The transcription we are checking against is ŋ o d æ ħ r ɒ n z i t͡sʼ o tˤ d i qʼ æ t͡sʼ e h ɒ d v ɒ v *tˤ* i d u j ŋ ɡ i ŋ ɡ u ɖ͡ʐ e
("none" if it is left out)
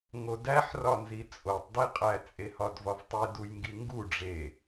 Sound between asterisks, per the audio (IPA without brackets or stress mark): tˤ